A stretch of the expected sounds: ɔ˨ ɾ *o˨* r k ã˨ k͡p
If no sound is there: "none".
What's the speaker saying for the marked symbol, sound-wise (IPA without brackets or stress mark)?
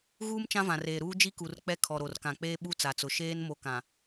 o˨